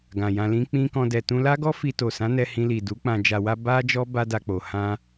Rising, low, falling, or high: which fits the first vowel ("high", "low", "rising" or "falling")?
low